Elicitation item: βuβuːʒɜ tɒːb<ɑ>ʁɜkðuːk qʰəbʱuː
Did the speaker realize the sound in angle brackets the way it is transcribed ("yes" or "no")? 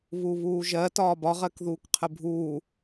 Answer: no